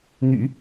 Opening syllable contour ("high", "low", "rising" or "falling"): low